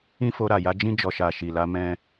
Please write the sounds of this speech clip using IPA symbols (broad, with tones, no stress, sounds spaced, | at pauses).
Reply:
ĩ˦ f o˧ ɾ a˨ j a˧ d͡ʒ ĩ˧ d͡ʒ ɔ˨ ʃ a˨ ʃ i˨ l a˧ m ɛ̃˧